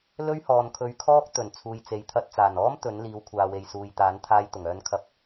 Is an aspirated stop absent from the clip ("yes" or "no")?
no